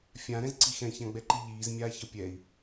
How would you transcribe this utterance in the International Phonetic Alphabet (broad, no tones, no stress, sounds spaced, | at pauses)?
fʲ ã ɾ ɛ̃ z ǀ i x ɛ̃ ç ã ɡ͡b ɛ ǃ i ʎ iː z mʲ aː ç ʌ pʲ ɛ i̯